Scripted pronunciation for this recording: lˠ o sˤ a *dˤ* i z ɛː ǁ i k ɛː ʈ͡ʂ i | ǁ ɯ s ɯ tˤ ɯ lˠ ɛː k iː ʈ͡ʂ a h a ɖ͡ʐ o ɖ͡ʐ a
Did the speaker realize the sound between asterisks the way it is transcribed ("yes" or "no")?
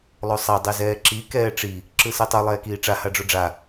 yes